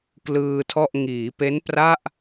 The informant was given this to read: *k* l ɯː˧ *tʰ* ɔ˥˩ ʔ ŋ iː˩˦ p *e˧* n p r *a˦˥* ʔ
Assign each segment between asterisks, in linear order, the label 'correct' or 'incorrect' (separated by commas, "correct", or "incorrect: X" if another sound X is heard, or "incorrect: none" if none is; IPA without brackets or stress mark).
correct, correct, incorrect: e˦˥, incorrect: a˥˩